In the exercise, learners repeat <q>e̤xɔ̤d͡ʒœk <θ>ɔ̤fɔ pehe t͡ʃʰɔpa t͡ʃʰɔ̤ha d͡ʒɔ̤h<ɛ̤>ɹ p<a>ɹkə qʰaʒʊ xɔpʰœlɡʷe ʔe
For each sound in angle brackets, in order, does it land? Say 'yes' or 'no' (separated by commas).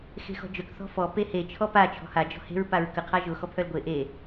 no, yes, no, yes